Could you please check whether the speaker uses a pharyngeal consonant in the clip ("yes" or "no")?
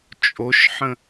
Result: yes